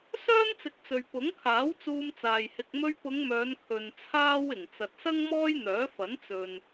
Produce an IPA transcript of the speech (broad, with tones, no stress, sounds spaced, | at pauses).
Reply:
s œː˥ n t͡s ɪ˨˥ k̚ t͡s ɵ˨ ɥ p ʊ˨˥ ŋ kʰ aː˨˥ w t͡s uː˧ m t͡s aː˨ j h ɪ˨ k̚ m ɵ˧ ɥ p ʊ˨˧ ŋ m œː˨˧ n kʰ ɵ˨ n t͡sʰ aː˥ w ɪ˨˩ ŋ t͡s ɐ˨ t̚ s ɐ˥ ŋ m ɔː˥ j n̪ œː˨˥ f ɐ˨˥ n t͡s ɵ˨ n